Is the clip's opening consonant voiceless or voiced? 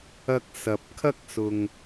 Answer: voiceless